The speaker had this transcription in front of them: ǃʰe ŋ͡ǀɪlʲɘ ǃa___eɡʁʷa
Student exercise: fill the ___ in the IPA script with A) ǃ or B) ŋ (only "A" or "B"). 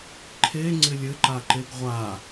A